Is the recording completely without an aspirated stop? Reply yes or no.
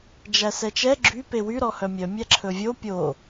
no